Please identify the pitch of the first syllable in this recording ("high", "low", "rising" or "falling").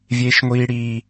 high